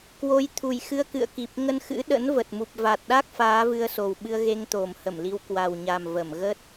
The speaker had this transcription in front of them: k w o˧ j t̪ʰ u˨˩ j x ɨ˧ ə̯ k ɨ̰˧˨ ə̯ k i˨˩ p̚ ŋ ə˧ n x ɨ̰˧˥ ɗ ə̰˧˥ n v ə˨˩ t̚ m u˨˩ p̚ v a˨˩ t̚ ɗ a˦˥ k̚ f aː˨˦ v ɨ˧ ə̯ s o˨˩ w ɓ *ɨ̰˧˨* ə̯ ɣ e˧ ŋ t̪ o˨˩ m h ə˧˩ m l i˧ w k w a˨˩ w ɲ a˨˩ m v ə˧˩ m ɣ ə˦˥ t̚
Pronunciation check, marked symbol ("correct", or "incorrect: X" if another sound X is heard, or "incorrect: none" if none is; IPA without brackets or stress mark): incorrect: ɨ˧